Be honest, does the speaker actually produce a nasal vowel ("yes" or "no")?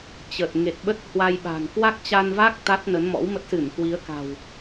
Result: no